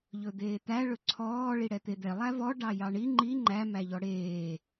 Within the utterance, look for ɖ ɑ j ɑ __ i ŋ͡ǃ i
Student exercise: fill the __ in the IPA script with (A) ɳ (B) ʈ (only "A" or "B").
A